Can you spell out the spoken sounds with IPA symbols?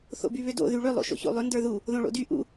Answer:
θ o̰ b y β ʏ d o̰ ð y ɭ ʏ lˠ o̰ ʃ o̰ ç o̰ lˠ ʏ n d ə˞ ð u | ð õ ɭ o̰ d y ʔ ṵ

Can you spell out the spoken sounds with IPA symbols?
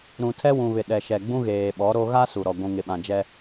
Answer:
ɾ ũ˨ tʰ ɛ˦ w ũ˨ β ɪ˨ ɗ ɛ˨ ʃ ɛ˨ ɡ͡b ũ˦ ɣ eː˨ ɓ ɔ˨˦ ɾ o˦ ɣ a˦ s u˨ ɾ ɔ˨ ɡʷ ũ˨ ŋ ɪ˨ ɓ ã˨ d͡ʒ ɛ˦

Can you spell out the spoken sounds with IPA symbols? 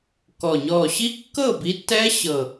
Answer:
k ɔ˨˩ ɲ ɔ˨˩ ɕ i˦˥ kː ɤ˥˨ b i˨˥ tː ɛ˦˥ ɕ ɤ˨˩

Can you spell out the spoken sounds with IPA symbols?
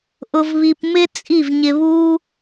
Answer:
ʔ ʊ˧ v β i˧ p m ɪ˦ t͡sʼ i˦˨ v ɲ ɪ˧ β u˦

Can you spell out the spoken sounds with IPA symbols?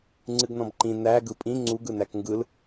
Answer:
ŋ͡ǀ ɨ ɡ n ɔ̃ b ǃ ĩ n æ ɡ ɯ pʼ ĩ ŋ͡ǀ u ɡ ɯ n æ k ŋ ɡ ɯ l

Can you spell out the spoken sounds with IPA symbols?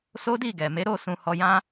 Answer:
s o˦ d i˦˨ ɡ ɛ˨ m e˨˦ ɾ o˦˨ s ũ˧ h ɔ˧ j ã˦

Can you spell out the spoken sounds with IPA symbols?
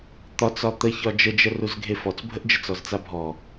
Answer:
t̪ ɒ t͡s ɒ t̪ ə ç ɒ d͡ʒ ə d͡ʒ ə r u z ɡʱ e f ɔ t͡s bʱ ə ʔ d͡ʒ ə t͡s ɔ z t͡s a bʱ ɔ

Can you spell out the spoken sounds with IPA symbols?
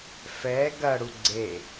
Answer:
f ɛ ɡ ɐ ɽ u ɡ͡ǀ e

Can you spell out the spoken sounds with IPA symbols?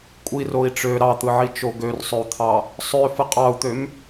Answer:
kʷʼ i r o i̯ ʈ͡ʂ ø ɾ ɑ t̪ ɯ ʕ i t͡ʃ o ɡ ø r sˤ ø u̯ t̪ʰ ɑ | sˤ ø f ɯ qʼ ɑ u̯ t̪ ø m

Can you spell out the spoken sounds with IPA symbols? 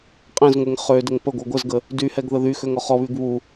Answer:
qʼ ẽ z ŋʷ e ŋ χ ø d ə ŋ p ə ɡʷ œ ɡʷ ə z ɡ ə | d y h ɛ ɡ ð ə ð y x ø ŋ ɔ χ ɔ β y ɡ β u

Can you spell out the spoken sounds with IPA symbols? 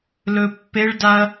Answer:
l ɵ pː e ɭ d a ɐ̯

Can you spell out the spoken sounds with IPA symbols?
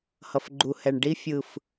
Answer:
h ʌ˨ f ɡ͡ǃ u˨ h ɛ˨ ɳ ɖ i˧ fʲ ɯ˨ f

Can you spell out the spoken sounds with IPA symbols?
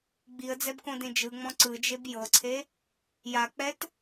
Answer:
ɡ͡b i ə̯ d͡z ɛ b k õ d ẽ d͡ʒ ɯ ŋ͡m ɔ̃ ǀ ɯ d͡ʒ e b j ɤ ǀʰ e | j a k͡p ɛ t

